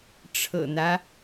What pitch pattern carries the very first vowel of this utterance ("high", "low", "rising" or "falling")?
low